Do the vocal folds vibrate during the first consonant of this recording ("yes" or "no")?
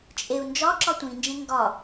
no